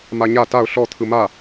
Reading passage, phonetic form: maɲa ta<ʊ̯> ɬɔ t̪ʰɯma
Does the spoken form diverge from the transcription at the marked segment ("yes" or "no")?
no